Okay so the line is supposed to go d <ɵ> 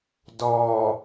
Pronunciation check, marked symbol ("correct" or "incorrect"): incorrect